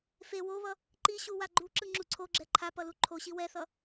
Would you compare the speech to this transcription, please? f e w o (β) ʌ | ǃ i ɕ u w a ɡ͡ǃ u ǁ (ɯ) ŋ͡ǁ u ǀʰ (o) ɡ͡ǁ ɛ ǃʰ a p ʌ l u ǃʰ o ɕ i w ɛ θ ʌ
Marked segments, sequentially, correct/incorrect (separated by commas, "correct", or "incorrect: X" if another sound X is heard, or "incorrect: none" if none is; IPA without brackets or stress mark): correct, correct, correct